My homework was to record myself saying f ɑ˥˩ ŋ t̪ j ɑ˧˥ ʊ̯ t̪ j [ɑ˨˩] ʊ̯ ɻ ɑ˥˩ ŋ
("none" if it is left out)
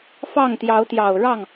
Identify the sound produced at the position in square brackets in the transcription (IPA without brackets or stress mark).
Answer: ɑ˨˩